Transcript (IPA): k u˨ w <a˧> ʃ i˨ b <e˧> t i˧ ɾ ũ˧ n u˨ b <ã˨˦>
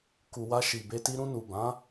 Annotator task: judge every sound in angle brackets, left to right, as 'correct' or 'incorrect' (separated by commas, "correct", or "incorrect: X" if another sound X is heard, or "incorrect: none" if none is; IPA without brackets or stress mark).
correct, correct, correct